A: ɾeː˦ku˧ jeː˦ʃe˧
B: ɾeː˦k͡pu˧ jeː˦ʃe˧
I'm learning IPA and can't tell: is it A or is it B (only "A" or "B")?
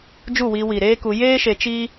A